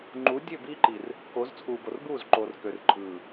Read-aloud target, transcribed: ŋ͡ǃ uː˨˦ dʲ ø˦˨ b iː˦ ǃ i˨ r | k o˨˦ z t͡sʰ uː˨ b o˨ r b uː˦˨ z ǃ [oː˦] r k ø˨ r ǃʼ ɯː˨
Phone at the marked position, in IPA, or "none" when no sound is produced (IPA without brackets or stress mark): oː˨